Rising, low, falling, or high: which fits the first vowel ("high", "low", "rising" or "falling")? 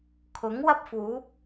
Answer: rising